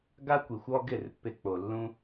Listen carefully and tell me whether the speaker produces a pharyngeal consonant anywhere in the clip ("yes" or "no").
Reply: no